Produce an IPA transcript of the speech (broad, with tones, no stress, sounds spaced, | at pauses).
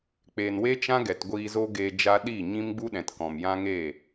k͡p eː˨ n w e˦ t͡ʃ ã˦ ɡ ɛ˨ t ɡʷ iː˧ z o˦ ɡ eː˧ d͡ʒ a˦ ɗ iː˦˨ ɲ ĩ˦ m ɡ͡b u˦ ɗ ɛ̃˨ t k ɔ̃˨ m j ã˦ ŋ e˦˨